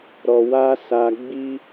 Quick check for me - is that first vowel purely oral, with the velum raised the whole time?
yes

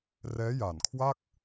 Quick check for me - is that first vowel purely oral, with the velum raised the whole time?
yes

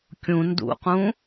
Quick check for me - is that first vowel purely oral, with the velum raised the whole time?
no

